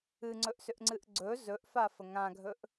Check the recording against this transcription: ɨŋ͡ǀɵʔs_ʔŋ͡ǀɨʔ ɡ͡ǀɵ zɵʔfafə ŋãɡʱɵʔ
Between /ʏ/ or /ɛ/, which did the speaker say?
ʏ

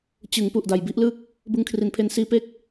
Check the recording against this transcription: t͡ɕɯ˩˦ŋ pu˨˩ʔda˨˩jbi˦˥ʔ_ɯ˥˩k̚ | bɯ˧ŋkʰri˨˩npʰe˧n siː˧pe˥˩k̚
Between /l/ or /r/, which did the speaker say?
l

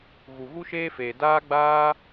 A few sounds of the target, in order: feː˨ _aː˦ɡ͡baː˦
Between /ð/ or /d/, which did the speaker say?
d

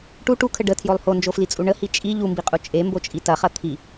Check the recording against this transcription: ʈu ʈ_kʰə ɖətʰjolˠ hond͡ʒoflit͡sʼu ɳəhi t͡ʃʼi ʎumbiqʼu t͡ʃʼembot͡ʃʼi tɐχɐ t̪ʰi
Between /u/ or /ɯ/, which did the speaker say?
u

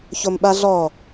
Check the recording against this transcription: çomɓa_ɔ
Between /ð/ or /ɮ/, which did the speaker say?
ɮ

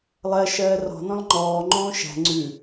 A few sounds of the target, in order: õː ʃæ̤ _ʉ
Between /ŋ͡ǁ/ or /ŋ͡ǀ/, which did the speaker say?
ŋ͡ǀ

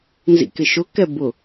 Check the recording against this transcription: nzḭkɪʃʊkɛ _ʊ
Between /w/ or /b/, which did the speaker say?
b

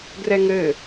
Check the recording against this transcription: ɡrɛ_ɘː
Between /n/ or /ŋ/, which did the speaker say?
ŋ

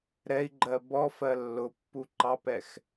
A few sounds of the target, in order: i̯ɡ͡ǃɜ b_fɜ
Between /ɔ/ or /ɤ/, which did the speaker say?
ɔ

